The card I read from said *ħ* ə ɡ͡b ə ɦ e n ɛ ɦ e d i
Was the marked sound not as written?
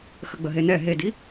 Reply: yes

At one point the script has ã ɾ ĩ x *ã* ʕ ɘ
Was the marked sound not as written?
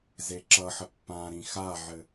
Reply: yes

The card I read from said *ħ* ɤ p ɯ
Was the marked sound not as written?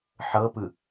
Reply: no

